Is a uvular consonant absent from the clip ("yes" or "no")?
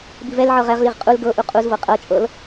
no